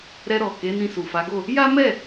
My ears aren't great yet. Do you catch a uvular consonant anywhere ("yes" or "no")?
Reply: no